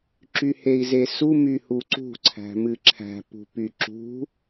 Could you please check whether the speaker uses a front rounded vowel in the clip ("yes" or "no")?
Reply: yes